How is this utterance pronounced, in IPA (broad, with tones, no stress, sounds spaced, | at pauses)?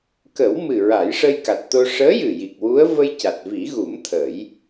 k ə˨˩˦ w m ɨ˨˩ ɹ a˨˩˦ j ʂ ə˧ j k a˨˩ t̚ t̪ o˧ ʂ əː˧˥ j ɨ˨˩ j i˨˩ k̚ w u˧˥ ə̯ v ə˧ j c a˨˩ t̚ v i˨˩˦ ɣ u˨˩˦ m t̪ʰ ə˨˩˦ j